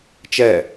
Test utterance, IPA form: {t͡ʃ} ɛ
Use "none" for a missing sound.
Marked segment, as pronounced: t͡ʃ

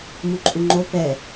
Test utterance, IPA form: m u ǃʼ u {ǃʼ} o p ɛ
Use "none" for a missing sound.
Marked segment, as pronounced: ŋ͡ǃ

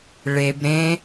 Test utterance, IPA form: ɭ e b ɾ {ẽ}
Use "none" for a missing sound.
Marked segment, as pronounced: ẽ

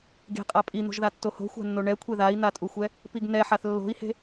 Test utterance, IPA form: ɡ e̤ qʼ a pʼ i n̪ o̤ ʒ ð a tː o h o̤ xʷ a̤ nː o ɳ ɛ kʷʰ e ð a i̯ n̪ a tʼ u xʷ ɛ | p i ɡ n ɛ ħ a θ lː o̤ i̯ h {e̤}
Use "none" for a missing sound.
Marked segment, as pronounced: e̤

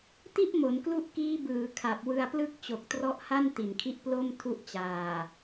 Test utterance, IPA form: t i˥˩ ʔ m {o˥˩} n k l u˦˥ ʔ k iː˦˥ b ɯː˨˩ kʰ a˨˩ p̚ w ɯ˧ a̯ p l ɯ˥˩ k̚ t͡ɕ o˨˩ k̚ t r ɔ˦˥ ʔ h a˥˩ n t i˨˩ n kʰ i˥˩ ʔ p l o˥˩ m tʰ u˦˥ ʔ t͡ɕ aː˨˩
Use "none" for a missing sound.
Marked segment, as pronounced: o˩˦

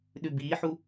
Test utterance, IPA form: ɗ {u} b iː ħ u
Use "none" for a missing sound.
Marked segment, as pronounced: ʉ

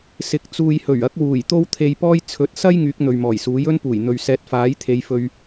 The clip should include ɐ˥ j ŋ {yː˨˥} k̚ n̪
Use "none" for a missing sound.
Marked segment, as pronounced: yː˨˥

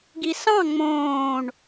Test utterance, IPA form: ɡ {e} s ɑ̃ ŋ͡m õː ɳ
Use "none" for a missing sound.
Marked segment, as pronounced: i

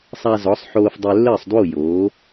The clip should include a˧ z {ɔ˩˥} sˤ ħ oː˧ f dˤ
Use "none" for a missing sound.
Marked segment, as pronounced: ɔ˩˥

